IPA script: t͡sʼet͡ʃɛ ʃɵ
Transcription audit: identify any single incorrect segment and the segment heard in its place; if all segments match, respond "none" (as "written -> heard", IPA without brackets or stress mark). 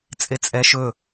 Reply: t͡ʃ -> t͡sʼ